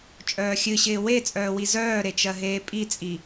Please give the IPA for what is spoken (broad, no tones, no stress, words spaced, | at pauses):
t͡ʃʼœːxʲɨɕɪː we t͡sʼœːwizœːɾe t͡ʃɜɦeːpʼit͡sʼi